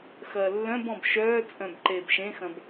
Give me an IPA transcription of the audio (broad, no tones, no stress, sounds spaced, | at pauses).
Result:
x ɐː lː œ̃ b ɔ̃ b ʃ œː t͡sʼ œ̃ b ǃ eː b ʃ ẽ x ɐ̃ b